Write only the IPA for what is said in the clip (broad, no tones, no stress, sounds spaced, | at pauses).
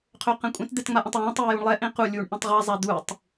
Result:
qʰ ø q ɛ̃ kʷʼ ɛ̃ t d̪ ɛ t ŋ͡m a ʔ ə̃ tˤ w ɛ̃ː tˤ uː j u ɳ lˠ ɛ ʔ ẽ q u lʲ uː ɳ ʔ ũ tˤ ʁ a zˤ a d̪ uː tˤ